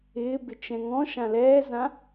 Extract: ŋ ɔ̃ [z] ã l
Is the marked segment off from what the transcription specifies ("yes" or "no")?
yes